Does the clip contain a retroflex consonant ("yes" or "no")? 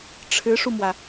yes